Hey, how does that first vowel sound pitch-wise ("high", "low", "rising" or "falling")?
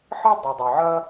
high